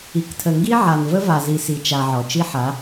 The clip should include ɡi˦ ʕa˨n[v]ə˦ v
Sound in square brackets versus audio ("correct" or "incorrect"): correct